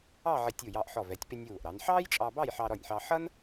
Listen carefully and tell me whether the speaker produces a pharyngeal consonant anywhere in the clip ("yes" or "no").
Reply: yes